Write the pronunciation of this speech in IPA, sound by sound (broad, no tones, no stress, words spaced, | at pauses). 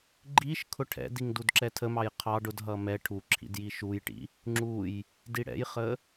ɡ͡ǃiʃ kʰʊʈʰɛ̰diŋ dudǁɛtʰəmɑj qʰɑɖ ʊdɦʌ mɛ ʈʰuǁʰḭd jiʃujʈḭ | ŋ͡ǁuj | diɽɛ̰jχə